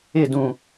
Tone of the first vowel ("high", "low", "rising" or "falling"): falling